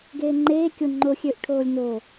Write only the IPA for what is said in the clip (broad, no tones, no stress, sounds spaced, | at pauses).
ɡ eː ŋ͡ǃ eː kʲ o ŋ͡ǃ o xʲ ø ʔ ʈʰ oː lʲ n o